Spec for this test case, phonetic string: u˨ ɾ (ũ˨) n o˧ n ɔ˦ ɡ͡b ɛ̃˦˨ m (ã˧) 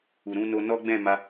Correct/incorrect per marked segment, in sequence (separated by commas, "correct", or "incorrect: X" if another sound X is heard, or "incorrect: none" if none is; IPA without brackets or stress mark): incorrect: ũ˧, incorrect: a˧